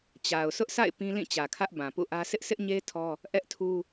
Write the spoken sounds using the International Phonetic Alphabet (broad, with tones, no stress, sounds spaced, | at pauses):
t͡ɕ a˨ ʊ̯ sʰ ʊ˦ ʔ sʰ a̰˦˨ ɪ̯ p ĩ˦ l ĩ˦˨ t͡ɕ ä˨ kʰ ä˦ ʔ b ã˨ p ṵ˦˨ ʔ ä˦ s ɪ˦ ʔ s ɪ˦ ʔ ɲ e˦ tʰ ɔ˦ | ʔ ɛ˦ ʔ tʰ u˦